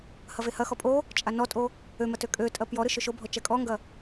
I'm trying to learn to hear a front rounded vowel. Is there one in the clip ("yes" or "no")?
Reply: yes